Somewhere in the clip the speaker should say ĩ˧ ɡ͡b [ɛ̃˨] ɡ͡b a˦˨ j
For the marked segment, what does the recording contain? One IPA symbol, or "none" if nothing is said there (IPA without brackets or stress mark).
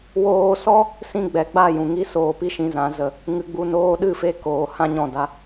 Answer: ɛ˨